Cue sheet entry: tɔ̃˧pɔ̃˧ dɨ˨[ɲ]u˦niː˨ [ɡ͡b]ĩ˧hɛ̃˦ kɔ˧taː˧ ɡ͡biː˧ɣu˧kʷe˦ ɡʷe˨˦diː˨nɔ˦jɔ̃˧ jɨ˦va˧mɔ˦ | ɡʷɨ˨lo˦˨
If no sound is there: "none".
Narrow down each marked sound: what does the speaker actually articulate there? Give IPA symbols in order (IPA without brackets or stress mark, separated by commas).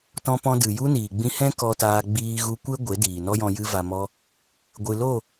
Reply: j, ɡ͡b